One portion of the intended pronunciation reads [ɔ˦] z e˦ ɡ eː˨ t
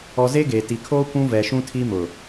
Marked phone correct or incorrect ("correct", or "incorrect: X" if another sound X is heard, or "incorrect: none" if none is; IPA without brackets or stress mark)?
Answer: incorrect: ɔ˨